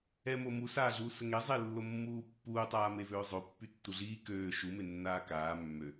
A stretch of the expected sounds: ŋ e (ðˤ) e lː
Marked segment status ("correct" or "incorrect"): incorrect